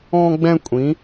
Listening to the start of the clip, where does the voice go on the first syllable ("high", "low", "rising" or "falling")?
high